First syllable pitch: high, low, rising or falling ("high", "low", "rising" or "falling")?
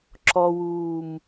low